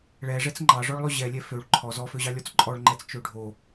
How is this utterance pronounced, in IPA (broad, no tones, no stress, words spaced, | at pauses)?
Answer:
ɭɛʐɛt͡s ŋ͡ǃɑʐɔɭlˠø ʑɛlʲɛ føɭ ǃʰɔ zɔføʑɑ lʲɔt͡sǃʼɔɭŋ͡ǃɛt͡s t͡ʃøɖʱo